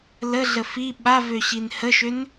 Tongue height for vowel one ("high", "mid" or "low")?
mid